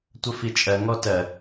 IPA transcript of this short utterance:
tʷəfit͡ʃʼɜ ŋɔtɜ

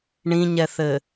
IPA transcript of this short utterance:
ɳĩɲɛθɘ

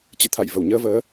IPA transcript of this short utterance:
t͡ɕɨ̰˧˨t̪ʰa̰˧˨j və˧˩wɲəː˧vəː˨˦

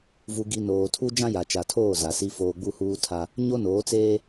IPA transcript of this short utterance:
vu˨ɡi˨ noː˨tʰu˦ d͡ʒã˦ja˨t͡ʃa˨tʰoː˦˨ za˨si˦foː˦ ɡ͡bu˦huː˦tʰa˦ | ɲo˦noː˨˦t͡seː˦

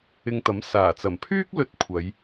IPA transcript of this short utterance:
ɪ˧ŋt̪ɐ˨˥m saː˨˩t͡sɐ˨˩mpʰyː˥k̚lɵ˧t̚ kʷʰɐ˨˧j

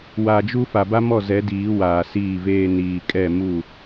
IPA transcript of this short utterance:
wa˨d͡ʒu˦ fa˨ba˦mɔ˦˨ zɛ˨˦diː˨˦ waː˨siː˦˨veː˦ niː˨kʼɛ˦˨ mu˦˨

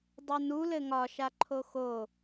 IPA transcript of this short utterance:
dˤønu lɘŋɒ ʃaǃʰoxo

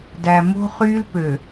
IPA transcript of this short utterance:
dæ˨mo̤˦ χy˦lpø˨

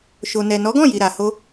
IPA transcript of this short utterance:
ʃo˨ nɛ˨nɔ˨˦ɡɔ̃˦˨ji˨ ɾa˨ho˧

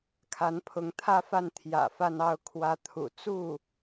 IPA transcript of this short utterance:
kʰa˧˥npʰʊ˧˥ŋt̪ʰä˥˧fa˥˩n t̪ʰjä̰˨˩ fa˥˧nɑ˥˩ʊ̯ kʰwä˧˥ t̪ʰṵ˨˩t͡su˥˩

